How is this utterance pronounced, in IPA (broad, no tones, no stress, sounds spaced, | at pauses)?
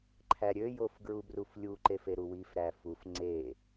ǃʰ æ ɾʲ ø j o f ɡ ɹ u b r u f lʲ u ǃ e f e ɾ u w i f ɾ æ f u f ŋ͡ǀ e